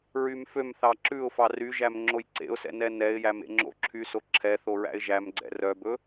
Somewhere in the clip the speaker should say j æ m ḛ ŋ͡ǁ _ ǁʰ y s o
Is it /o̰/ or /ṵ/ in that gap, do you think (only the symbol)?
o̰